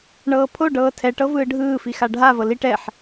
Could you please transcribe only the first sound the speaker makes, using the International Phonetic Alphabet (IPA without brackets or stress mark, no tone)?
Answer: ɳ